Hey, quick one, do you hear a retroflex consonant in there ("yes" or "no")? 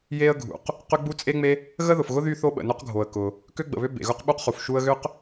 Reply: no